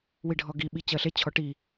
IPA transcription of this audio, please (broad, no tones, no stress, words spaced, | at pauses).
wiɖʱɔɡi ɓit͡ɕɜɬe t͡ɕʰɔʈi